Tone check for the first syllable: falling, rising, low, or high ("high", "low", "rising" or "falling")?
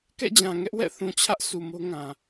falling